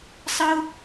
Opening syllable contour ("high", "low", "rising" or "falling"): high